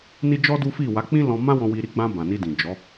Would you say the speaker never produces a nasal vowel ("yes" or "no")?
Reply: no